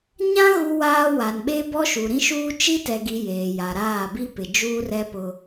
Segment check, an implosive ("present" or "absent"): present